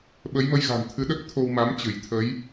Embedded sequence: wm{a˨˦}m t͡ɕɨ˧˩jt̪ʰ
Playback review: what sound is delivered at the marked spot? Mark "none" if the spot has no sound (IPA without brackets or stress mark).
a˨˦